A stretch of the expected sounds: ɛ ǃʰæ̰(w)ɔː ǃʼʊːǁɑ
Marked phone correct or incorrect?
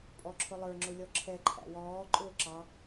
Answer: correct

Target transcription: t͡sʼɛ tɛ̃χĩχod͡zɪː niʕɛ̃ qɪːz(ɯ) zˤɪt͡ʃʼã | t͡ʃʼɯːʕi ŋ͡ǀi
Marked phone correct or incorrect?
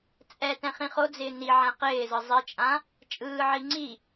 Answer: correct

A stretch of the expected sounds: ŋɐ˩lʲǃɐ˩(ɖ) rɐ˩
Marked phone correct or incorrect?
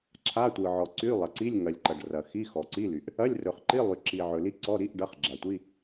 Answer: correct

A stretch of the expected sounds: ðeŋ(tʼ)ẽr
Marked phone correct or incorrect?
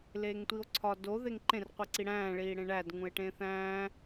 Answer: incorrect: ǃ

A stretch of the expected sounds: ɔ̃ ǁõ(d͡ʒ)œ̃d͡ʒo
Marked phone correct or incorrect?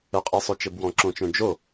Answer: incorrect: t͡ʃ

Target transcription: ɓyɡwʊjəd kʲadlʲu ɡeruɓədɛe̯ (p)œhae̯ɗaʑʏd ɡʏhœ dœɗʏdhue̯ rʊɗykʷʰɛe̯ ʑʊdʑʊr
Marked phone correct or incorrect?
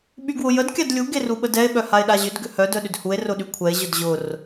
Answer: incorrect: ɓ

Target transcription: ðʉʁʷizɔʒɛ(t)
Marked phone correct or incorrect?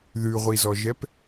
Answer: incorrect: p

